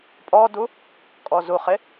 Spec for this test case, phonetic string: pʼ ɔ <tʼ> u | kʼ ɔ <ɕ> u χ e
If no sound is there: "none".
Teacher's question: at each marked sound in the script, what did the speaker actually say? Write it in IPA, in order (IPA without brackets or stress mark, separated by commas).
d, z